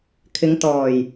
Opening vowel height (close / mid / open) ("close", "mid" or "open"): close